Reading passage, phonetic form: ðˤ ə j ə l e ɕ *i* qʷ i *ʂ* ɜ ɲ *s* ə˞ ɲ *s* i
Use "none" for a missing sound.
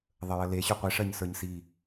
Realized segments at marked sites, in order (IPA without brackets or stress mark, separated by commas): y, ʂ, s, s